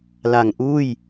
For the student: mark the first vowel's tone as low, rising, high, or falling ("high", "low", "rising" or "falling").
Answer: low